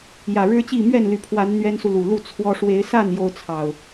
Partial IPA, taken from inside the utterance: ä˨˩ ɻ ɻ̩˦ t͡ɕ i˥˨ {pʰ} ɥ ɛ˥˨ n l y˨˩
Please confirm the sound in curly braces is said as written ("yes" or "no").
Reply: no